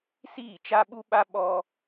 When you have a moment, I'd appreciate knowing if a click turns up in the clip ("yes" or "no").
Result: no